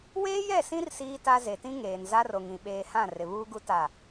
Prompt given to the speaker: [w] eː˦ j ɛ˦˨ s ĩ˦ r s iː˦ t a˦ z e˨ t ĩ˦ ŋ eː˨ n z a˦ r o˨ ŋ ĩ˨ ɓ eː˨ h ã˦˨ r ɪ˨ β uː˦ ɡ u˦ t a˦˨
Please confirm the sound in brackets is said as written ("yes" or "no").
yes